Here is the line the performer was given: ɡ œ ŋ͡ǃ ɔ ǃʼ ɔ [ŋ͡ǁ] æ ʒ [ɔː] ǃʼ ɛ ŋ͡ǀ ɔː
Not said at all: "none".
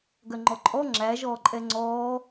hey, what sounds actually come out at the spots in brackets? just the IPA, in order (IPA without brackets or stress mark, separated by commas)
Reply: ŋ͡ǁ, ɔː